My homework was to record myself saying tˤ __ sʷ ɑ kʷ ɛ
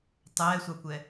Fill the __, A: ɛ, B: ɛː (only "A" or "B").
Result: B